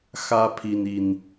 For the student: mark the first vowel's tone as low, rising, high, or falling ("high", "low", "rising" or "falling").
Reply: high